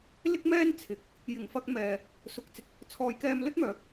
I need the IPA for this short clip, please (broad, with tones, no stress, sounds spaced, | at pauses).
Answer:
l ɪ˥ k̚ m ɛː˥ n t͡sʰ ɪ˨˥ k̚ | j ɪ˨˩ ŋ f ɐ˧ k̚ m ɛː˨ | s ʊ˨ k̚ t͡s ɪ˧ k̚ | t͡sʰ ɔː˨ j k ɛː˧ m l ɵ˥ t̚ m œː˨˥ k̚